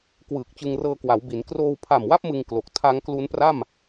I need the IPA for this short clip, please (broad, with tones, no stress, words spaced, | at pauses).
kwɯː˨˩k̚t͡ɕɯ˧ŋrɤː˧kwa˩˦w bi˩˦n kroː˧wpʰa˨˩mwa˥˩p̚ mɯ˧ŋklo˨˩k̚ tʰa˦˥ŋklu˦˥npra˥˩m